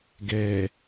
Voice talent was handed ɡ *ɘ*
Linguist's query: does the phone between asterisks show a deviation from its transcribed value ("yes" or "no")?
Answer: yes